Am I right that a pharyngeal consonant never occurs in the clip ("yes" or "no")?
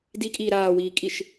yes